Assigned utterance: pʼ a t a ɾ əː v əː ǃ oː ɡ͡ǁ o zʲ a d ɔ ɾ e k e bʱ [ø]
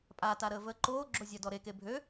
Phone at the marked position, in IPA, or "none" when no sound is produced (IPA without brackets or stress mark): ø